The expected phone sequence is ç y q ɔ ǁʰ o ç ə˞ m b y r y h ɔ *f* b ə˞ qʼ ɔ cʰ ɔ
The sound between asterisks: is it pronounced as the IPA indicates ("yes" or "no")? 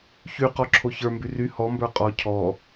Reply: no